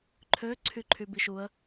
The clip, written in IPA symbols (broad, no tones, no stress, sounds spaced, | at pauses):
ǃʰ ø ǀʰ y ǃʰ y b i ʃ u ə̯